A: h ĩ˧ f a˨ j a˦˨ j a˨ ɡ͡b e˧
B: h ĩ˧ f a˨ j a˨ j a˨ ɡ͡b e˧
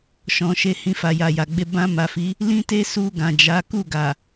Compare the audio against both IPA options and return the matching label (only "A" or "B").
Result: B